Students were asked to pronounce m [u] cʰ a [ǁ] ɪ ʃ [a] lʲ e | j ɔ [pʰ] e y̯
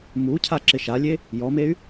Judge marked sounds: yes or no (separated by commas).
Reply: yes, yes, yes, no